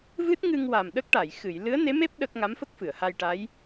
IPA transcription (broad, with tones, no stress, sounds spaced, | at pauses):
v ɨ˦˥ t̚ ŋ ɨ˧ ŋ w a˨˩ m ɗ ə˦˥ k̚ ʈ a˨˩˨ j x ɨ˨˩˨ j l ɨ˧˥ ə̯ n e˧˥ m e˦˥ p̚ ɗ ə˦˥ k̚ ŋ a˧˥ m f ə˦˥ k̚ f ɨ˨˩˨ ə̯ h a˧ j ʈ a˧˥ j